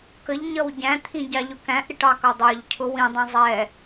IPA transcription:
k ə ʎ ɲ ʌ w ɟ æ̃ t̪ʰ ĩ ɟ ɑ ʎ ʊ k æ̃ ʔ ɾ ɪ ʈ ɑ k ʌ dˤ ə˞ ʎ cʰ ʊ w ĩ dˤ ĩ zˤ ɛ

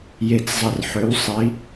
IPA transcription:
j e˧˩ t͡s zˤ ə˧˩ r ħ ø˨˥ w sˤ i˨˥

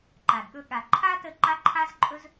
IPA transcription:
ǃ a˨ d ɠ ɵ˧ ɠ a˨ ǃʰ a˦ t ə˧ ǃ a˦ ǃʰ a˦ z ǃʼ ɵ˦ z

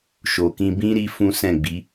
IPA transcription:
ʃ o˨ k ĩ˧ b ĩ˦ ɾ i˦ f ũ˦ s ɛ̃˦˨ ɡ͡b i˨˦

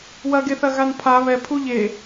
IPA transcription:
w ɐ ɡ e θ ɐ ɣ a n pʰ a β ɛ pʰ u ʎ e

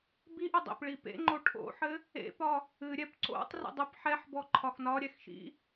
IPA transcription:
b i ʔ ʏ dˤ ḛ p ɭ i p ḛ ŋ͡ǃ o ʈʰ o̰ ħ ɘ | ḛ p ɒ | ɨ ɾʲ ɛ p ǀ o̰ tˤ r ḛ dˤ ʏ p ħ ɛ ħ b ɔ ǃʰ ɒ x n ɒ ɾʲ ɛ x ʃ ḭ

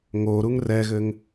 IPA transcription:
ŋ o ɾ u ŋ r ɛ ɣ ɘ ŋ

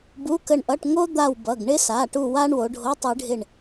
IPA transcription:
b u˧˥˧ k ə˦˨ ɳ ʔ ʌ˧˥˧ ʈ ŋ o˥ d̪ a˦˨ w b ʌ˩˧˩ ɡ ɳ ɪ˥ s a˩˧˩ ʈ u˦˨ w a˥ ɳ w o˨˦ ɖʱ o˧˥˧ tˤ ɯ˨˦ ɖʱ ɪ˦˨ ɳ

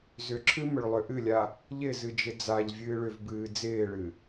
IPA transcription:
z ʏ ǁʰ ɨ m ʏ ɭ lˠ ʏ ʔ ɨ lʲ a | ʎ ɪ z ɨ d͡ʒ ɪ d͡z a ʎ vʲ ɨː ɭ ʏ v b ɨː d͡z ɪː ɭ ɨ

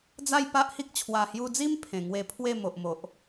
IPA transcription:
d͡z a˥˧ j p a˦ ʔ h i˦ k̚ t͡ɕʰ w a˨˩ h j u˧ d͡z i˦ m pʰ ẽ˨˩ ŋ w e˧ pʰ w e˥˧ m o˨ ʔ m o˨ ʔ

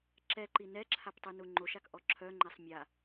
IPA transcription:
ǁ ɛ ǃ i n ɛ ǁʰ a p tˤ y n u ŋ͡ǃ o ʃ a k ʔ ɔ ǁʰ œ ŋ͡ǃ ɛ sˤ mʲ a

